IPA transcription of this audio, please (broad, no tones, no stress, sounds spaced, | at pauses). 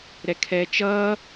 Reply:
ɾ ɛ kʰ ɛː t͡ʃ ʌː